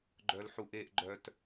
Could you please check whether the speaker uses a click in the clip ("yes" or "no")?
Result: yes